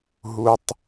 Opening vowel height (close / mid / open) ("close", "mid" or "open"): close